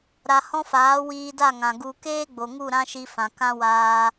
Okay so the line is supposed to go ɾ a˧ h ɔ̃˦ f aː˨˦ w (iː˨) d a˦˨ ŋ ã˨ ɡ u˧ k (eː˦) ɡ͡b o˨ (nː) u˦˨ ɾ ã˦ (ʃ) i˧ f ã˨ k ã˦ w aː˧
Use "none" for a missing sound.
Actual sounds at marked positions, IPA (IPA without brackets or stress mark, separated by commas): iː˧, eː˦, ŋ, ʃ